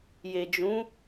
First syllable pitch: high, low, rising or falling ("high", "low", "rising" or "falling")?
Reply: low